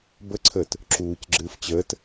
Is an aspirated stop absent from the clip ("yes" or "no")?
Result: no